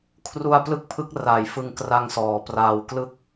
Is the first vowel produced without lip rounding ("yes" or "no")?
no